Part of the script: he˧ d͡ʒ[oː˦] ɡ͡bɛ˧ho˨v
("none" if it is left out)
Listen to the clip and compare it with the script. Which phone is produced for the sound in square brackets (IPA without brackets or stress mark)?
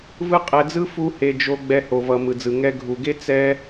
o˦